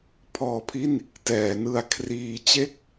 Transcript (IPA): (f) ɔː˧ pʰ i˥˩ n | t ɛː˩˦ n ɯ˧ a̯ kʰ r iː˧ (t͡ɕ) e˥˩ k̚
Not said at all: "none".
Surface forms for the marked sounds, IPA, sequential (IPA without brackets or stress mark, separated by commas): pʰ, t͡ɕ